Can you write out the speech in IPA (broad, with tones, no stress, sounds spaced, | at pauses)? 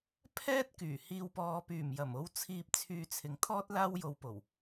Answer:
pʰ ɛː˥ t̚ k yː˨˩ h iː˨ w p ɔː˨ p yː˨˩ m j ɐ˨˩ m o˧ w t͡sʰ iː˧ p̚ t͡sʰ yː˧ t͡sʰ ɪ˨˧ ŋ t̪ʰ ɔː˥ t̚ l aː˥ w j o˧ w p o˨˩ w